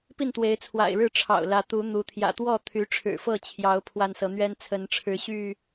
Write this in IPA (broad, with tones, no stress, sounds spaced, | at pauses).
p i˥˨ n t̪ w e˨˦ ɪ̯ t͡sʰ w a̰˨˩ ɪ̯ ɻ ɻ̩˥˨ ʈ͡ʂʰ ɑ̰˨˩ ʊ̯ l ä˨˦ t̪ u˨˦ n̪ u˨˦ t̪ʰ j ä̰˨˩ t̪ w ɔ˥˨ t̪ʰ y˨˦ ʈ͡ʂʰ ɻ̩˨˩ f ɤ˥˨ t͡ɕʰ j ɑ˨˦ ʊ̯ pʰ w a˦ n s ɤ˨˦ n̪ ɥ ɛ˦ n t͡sʰ ə˨˦ n ʈ͡ʂʰ ɻ̩˨˦ ɕ y˥˨